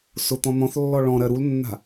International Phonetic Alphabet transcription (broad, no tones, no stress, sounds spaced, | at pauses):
s ʊ t̪ ɔ̃ n̪ ɔ̃ θ lː ɔ ɭ ɔ̃ ɾ ɜ ɾ u l nː a̤